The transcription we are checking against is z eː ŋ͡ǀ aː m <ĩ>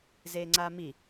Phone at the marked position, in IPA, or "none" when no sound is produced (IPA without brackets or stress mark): i